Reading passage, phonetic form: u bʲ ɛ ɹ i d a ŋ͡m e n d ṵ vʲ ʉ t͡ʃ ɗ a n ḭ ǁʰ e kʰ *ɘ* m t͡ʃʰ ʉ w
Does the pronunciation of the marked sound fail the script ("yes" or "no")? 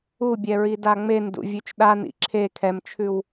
yes